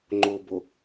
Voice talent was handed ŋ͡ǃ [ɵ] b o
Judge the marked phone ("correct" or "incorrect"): incorrect